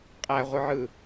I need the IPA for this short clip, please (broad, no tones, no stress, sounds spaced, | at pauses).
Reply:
qʼ æ ʁʷ ɯ ʕ ɯ